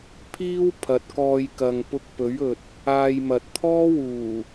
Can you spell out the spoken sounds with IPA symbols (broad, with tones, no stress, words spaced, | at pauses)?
pʰiː˥w pʰɐ˨t̚kɔː˧j kɐ˨ŋpʊ˧k̚ pɵ˨˥ɥɵ˨t̚ | aː˧jmɐ˨t̚ t̪ʰɔː˥wuː˨˩